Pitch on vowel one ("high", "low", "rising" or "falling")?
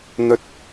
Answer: low